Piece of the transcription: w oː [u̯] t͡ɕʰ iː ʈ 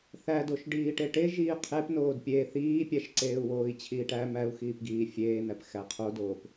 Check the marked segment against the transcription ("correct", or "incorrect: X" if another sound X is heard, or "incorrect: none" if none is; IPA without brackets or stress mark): incorrect: i̯